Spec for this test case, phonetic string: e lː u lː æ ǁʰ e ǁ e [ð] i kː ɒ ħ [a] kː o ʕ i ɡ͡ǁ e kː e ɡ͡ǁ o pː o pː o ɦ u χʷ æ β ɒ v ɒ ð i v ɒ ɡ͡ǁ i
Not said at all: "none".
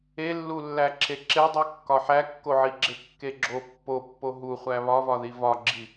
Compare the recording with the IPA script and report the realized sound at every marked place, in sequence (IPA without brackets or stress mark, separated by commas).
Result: dˤ, æ